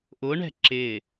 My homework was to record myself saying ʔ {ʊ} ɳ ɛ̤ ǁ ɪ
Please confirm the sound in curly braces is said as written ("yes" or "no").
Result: yes